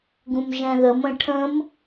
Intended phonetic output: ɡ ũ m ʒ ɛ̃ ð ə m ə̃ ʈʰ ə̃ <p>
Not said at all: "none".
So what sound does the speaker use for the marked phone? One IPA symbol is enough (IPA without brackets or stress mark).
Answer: m